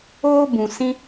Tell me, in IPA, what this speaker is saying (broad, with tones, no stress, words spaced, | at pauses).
oː˦ bũ˨sĩ˧